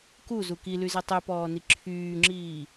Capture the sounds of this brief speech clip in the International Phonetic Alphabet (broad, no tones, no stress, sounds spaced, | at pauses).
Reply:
k u z u k i l y z e tˤ y p ɔː n i ǁʰ yː ŋ͡ǁ iː